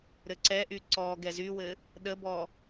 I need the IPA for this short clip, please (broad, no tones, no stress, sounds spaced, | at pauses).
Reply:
ɾ ɘ ǀ ɛ ʔ y ǀ ɔ ɡ ɛ z y w ɘ | ɗ ə b ɔ